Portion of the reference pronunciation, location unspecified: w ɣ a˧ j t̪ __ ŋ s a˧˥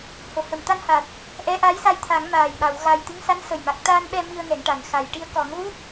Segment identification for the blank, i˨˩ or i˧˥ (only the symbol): i˧˥